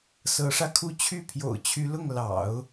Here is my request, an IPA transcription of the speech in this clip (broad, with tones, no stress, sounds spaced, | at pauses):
s ɤ˧˥ ʂ ä˧ kʰ u˥˧ t͡ɕʰ y˥˩ pʰ j o̰˨˩ ʊ̯ t͡ɕʰ y˧˥ l ʊ˥˩ ŋ l ɑ̰˨˩˦ ʊ̯